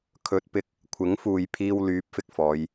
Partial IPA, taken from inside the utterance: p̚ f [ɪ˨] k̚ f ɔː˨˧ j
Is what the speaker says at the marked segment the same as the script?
yes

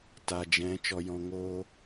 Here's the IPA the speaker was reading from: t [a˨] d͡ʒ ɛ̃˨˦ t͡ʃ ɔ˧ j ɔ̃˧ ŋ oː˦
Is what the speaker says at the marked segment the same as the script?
yes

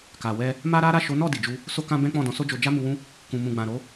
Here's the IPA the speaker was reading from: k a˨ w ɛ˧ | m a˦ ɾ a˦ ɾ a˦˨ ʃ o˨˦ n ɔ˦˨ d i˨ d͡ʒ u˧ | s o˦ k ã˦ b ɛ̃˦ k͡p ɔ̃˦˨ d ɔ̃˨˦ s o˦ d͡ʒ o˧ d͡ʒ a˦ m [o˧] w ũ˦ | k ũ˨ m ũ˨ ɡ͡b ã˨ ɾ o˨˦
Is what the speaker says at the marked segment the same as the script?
no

